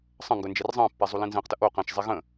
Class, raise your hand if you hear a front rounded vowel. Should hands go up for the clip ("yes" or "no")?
no